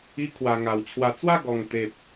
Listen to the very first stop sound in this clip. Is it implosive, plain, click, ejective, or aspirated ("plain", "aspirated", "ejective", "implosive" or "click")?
aspirated